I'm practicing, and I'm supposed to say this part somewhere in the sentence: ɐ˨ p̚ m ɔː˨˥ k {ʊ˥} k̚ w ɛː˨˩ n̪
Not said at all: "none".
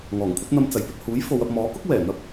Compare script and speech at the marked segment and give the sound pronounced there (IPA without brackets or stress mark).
ʊ˥